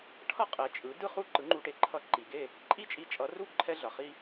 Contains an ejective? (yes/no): yes